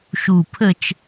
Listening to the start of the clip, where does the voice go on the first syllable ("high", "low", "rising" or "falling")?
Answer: low